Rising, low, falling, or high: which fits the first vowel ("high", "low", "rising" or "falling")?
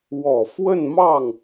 low